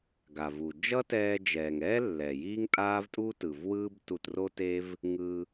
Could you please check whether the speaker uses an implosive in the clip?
no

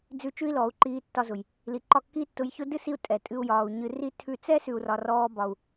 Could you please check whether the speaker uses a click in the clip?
yes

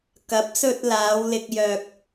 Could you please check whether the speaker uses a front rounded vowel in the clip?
yes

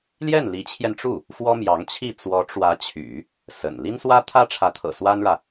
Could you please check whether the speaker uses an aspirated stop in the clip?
yes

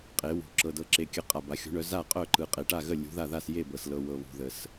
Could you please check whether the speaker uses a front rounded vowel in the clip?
yes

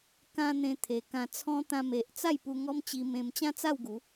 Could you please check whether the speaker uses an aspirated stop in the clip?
yes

